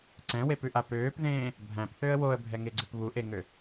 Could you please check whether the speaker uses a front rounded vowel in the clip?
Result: yes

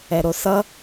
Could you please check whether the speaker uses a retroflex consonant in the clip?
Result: no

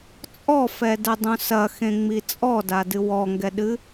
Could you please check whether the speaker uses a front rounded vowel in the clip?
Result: no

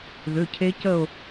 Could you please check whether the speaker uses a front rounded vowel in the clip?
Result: yes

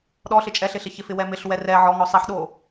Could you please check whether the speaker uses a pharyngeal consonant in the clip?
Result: yes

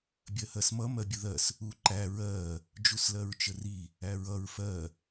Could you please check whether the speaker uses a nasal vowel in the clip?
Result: no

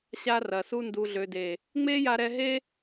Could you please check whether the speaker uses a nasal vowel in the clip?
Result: no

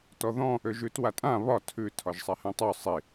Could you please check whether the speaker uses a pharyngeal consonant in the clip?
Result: no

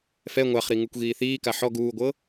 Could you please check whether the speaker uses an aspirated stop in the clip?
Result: no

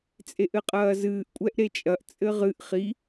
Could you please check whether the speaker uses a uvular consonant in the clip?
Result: yes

